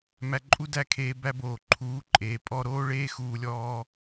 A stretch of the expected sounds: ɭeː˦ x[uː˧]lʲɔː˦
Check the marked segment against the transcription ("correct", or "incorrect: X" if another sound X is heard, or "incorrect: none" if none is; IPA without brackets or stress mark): correct